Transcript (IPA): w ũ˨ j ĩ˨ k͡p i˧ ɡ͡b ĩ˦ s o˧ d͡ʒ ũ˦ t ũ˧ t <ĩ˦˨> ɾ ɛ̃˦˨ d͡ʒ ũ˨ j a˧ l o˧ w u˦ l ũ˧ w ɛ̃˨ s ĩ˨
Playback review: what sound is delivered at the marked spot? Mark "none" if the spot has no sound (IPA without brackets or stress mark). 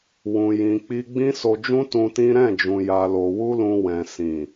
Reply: ĩ˦